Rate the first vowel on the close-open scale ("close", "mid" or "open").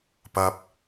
open